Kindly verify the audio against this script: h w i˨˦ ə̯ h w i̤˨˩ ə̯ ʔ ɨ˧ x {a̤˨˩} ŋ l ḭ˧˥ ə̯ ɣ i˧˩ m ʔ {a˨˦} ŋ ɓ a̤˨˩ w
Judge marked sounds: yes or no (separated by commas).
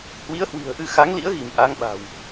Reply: no, yes